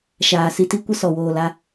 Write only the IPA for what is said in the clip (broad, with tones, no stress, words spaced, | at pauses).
ʃaː˨ si˧ti˦kʷə˦ sɔ˨woː˨la˧